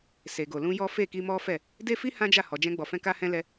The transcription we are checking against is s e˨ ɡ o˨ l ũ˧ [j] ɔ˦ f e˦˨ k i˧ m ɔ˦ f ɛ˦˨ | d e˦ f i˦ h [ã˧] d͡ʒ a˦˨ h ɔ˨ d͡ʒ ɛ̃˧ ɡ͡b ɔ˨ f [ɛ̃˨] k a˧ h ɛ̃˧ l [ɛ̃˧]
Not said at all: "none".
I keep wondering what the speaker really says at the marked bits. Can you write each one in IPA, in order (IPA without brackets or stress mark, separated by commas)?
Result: j, ã˦, ɛ̃˧, ɛ˧